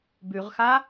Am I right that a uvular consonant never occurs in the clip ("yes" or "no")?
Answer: no